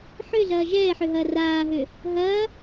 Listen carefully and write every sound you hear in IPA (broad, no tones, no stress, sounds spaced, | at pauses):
ħ ø ɮ ɐː ʒ ɛː ħ ø ɦ ɐː r aː ɦ ø | ɦ ɐː